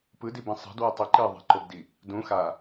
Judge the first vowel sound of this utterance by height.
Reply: high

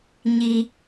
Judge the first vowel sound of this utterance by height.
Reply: high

